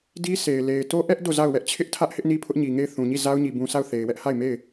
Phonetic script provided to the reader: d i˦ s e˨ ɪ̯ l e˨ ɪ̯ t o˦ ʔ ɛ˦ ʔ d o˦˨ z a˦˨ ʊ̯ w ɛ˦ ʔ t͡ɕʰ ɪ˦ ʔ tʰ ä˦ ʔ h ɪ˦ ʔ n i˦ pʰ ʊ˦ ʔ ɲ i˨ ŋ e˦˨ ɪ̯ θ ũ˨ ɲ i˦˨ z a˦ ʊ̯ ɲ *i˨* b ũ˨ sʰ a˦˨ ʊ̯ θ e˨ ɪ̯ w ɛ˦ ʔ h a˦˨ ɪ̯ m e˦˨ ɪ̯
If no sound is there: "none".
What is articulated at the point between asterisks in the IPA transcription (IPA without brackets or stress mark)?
i˨